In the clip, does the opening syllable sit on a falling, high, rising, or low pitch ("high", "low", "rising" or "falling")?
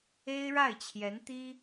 high